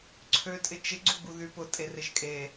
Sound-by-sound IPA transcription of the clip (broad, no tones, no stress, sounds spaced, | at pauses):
ǀʰ ø tʼ ɪ t͡ʃ ɪ ɡ͡ǀ u ɡ͡b u ð y p ʊ tʼ e r ɪ ʒ kʼ e